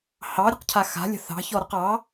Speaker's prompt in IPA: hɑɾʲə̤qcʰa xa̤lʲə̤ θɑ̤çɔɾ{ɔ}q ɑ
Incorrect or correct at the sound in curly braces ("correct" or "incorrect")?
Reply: incorrect